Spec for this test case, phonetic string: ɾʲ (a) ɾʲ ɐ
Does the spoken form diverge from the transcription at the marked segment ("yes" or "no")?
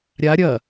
no